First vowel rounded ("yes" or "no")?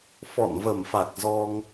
yes